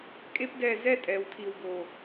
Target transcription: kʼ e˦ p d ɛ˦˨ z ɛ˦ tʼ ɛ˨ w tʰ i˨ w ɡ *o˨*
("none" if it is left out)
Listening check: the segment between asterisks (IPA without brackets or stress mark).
o˨